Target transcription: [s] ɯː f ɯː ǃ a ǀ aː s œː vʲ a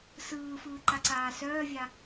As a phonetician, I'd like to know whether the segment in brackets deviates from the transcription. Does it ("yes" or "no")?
no